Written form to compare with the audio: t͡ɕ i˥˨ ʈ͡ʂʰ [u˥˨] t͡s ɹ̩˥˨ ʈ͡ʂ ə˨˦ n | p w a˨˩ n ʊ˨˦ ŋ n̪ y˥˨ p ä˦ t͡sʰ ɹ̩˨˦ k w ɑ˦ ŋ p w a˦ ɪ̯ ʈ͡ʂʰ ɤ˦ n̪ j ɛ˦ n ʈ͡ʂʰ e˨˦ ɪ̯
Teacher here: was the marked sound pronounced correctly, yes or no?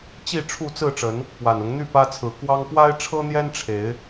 yes